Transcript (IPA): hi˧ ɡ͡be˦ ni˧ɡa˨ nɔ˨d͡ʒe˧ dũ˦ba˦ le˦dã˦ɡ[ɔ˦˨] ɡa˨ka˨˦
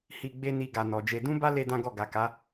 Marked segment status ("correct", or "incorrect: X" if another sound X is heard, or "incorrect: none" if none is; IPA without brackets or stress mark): correct